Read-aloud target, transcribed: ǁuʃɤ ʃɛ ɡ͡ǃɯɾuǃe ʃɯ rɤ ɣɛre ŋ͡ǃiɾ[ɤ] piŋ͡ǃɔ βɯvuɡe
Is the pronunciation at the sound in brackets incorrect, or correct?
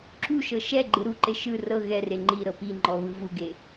correct